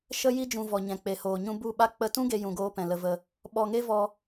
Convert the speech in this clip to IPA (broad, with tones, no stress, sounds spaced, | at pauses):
ʃ ə˦ j i˦ d͡ʒ ũ˧ v ɔ˨ ɲ ɛ̃˨ k͡p e˨ h oː˨ ɲ ũ˧ b u˦˨ ɓ a˦ k͡p ə˧ t ũ˦ ɡ e˧ j ũ˨ ɡ oː˧ p ɛ̃˨ l ə˧ v ə˧ | ɓ ɔ˧ ŋ e˦ v ɔ˧